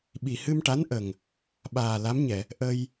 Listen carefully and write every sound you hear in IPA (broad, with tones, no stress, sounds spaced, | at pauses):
ɓ i˨˩ h ɨ˧ m ʈ a˧˥ n ʔ ə˨˩ ŋ | ɓ aː˨˩ l a˧˥ m ɲ ɛ˨˩˨ | ʔ ə˧ j